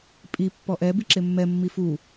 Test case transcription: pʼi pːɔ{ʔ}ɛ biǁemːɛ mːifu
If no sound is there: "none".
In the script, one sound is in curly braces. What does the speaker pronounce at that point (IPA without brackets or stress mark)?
ʔ